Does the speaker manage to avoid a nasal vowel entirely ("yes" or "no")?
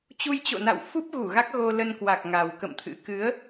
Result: yes